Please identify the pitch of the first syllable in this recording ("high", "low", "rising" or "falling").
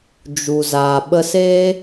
low